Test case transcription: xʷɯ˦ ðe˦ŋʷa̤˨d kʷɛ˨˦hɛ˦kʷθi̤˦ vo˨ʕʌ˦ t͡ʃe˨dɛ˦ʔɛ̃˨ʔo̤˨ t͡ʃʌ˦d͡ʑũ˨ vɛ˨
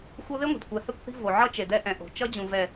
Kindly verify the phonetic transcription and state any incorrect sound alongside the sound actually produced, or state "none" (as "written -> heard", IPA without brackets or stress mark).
none